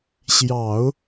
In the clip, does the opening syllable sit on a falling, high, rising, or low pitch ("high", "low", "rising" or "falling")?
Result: low